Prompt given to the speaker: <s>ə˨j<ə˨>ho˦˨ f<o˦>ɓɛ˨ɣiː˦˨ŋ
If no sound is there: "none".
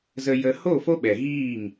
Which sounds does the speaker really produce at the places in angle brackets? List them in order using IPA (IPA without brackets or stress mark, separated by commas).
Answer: z, ə˨, o˦